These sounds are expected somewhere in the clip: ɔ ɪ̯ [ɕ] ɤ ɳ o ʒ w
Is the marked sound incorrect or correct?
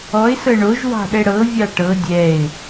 incorrect